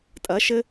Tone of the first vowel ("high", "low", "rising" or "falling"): rising